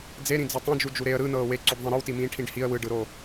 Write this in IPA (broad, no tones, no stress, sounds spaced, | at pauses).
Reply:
d͡z e ɾ ĩ d͡z e tˤ õ d͡ʒ u d͡ʒ u ɾ e ə̯ ɾ ɯ n ɤː w e ǀ o ɖ ðˤ ẽ ɾ ɯ w t i m ĩː ʈʰ ĩ ɖ h i ə̯ w ɯ ɖ ɯ ɾ o